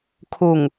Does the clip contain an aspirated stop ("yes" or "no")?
yes